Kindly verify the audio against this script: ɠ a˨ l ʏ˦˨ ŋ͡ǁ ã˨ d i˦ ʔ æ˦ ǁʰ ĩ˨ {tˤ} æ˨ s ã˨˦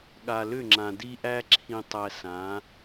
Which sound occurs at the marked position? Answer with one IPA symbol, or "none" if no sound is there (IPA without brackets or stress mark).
tˤ